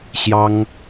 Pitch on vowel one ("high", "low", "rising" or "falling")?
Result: high